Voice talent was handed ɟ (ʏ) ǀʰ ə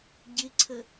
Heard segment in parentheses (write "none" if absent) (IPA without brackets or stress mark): ɪ